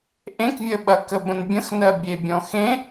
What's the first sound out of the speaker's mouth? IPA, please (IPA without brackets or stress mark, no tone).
ʔ